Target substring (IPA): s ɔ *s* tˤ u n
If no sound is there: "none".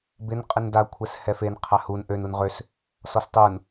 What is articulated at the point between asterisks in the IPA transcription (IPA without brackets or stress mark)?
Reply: s